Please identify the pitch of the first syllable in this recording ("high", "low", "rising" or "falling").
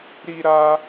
high